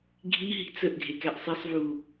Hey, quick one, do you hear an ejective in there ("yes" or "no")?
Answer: no